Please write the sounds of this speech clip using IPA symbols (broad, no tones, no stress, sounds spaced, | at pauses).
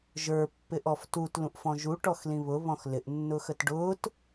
ʒ ə˞ pː ɪ ʔ ɔ f t u t l ũ ʔ f ɔ̃ ʒ u ʈ ɔ x l ĩ β ʊ β ɔ̃ x l ɪ ʔ nː ʊ x ə t ɖ ʊː t